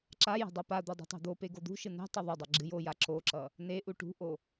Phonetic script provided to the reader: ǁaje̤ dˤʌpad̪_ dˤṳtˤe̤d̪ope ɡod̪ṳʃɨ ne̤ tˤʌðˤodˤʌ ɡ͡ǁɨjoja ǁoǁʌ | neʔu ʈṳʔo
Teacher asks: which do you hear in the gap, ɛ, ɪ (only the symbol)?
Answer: ɛ